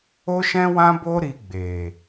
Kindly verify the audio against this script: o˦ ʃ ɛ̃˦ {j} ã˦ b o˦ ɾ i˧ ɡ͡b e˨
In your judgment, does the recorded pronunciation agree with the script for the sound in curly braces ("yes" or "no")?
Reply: no